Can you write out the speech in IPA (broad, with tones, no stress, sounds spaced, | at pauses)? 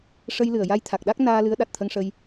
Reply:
ʂ ə˧ j l ɨ˨˩ ə̯ j a˧ j t̪ʰ a˨˩ k̚ ɗ a˦˥ k̚ n aː˧ l ɨ˧˥ ə̯ ɗ a˨˩ t̚ t̪ʰ ə˧ ŋ ʂ ə˧ j